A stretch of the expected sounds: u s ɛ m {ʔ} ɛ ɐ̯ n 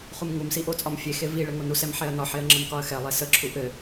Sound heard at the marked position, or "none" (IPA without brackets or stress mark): ħ